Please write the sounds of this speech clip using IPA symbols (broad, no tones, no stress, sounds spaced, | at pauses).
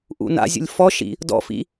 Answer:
ʔ ṵ n a̰ zʲ ṵ lʲ f ɔ ʃ ḭ | d ɔ̰ f ḭ